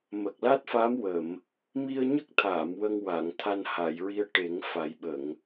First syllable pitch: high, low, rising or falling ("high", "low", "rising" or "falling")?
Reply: low